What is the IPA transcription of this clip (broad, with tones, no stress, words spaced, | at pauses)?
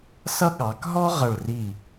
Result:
sʌ˥ ɠɑ˩˧kɦɔ˥ ʁʌ˧˩ɭri˧˩